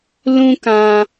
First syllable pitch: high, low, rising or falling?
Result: high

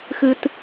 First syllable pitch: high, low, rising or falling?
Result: high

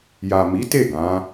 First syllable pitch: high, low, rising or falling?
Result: low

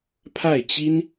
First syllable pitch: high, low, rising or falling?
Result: falling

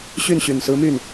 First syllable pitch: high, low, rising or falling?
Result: falling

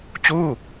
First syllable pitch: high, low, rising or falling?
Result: falling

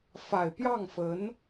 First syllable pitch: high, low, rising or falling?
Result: low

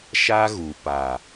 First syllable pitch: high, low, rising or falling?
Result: high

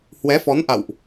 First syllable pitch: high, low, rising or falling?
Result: rising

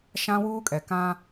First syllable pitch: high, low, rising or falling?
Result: high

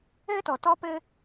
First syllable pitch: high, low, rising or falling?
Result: high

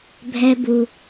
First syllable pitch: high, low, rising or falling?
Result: low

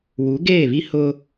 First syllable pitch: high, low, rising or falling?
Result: rising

